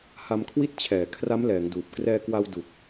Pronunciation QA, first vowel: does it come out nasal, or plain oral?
oral